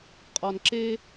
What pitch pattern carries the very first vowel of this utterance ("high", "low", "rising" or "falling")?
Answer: low